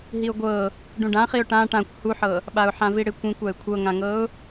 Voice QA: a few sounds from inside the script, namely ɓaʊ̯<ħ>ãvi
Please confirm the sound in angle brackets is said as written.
yes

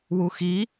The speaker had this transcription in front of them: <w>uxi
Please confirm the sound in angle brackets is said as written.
yes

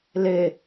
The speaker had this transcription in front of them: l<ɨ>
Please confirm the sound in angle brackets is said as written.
no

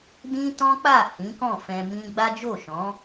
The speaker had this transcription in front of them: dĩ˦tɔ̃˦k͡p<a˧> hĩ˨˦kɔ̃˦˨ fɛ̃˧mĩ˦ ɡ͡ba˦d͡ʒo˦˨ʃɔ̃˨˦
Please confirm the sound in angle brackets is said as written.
no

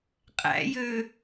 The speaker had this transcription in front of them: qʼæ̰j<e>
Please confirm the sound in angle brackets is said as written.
no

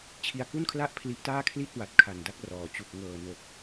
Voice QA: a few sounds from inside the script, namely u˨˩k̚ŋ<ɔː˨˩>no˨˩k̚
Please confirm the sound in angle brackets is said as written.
no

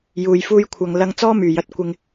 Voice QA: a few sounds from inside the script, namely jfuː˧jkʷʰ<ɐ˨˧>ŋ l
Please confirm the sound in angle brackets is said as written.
no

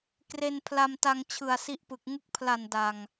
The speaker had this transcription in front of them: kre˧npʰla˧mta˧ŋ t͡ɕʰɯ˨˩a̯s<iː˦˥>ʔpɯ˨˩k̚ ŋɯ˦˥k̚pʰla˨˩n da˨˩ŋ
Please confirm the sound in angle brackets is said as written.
no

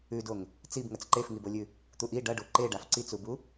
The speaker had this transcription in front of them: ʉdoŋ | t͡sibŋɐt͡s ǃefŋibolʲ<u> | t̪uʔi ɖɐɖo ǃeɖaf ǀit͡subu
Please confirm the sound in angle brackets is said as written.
no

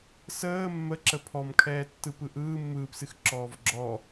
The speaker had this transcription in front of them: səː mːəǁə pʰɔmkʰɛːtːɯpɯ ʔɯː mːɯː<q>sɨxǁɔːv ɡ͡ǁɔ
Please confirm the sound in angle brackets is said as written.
no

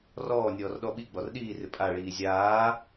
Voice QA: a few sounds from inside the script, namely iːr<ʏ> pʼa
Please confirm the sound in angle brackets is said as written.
no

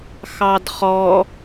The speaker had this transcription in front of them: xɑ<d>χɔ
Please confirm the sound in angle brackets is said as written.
yes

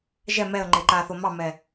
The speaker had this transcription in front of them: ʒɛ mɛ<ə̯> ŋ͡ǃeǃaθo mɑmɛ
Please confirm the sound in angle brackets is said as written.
yes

